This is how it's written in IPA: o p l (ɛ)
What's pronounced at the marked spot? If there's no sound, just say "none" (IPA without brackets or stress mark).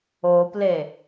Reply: e